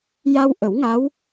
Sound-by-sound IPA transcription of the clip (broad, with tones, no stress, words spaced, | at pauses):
ja˧wʔə˨˩˦wŋa˧˥w